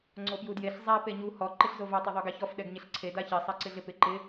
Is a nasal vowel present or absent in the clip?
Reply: absent